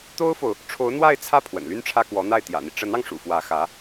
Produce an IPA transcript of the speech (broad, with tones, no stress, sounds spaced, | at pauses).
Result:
t̪ o˥ ʊ̯ f o˨ ʊ̯ | ʈ͡ʂʰ o˧˥ ʊ̯ n̪ w a˥˧ ɪ̯ t͡sʰ ä˥˩ pʰ w ə̰˨˩ n l y˥ n ʈ͡ʂʰ ä˥ k w ɔ˧˥ n̪ a˥˩ ɪ̯ t̪ j ä̰˨˩ n̪ i˦ ʈ͡ʂ ə˧˥ n ɑ˧ ŋ ʂ ṵ˨˩ f w ä˧˥ x ä˧˥